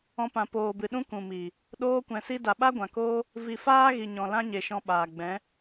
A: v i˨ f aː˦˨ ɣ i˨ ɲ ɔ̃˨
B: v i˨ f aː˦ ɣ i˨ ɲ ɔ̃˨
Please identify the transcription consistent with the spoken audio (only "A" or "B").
B